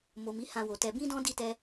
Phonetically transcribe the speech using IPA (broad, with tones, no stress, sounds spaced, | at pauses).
m o˨ m i˨˦ h ã˧ w o˨ t ɛ˧ b ĩ˦ d ɔ̃˦ d i˦˨ t ɛ˧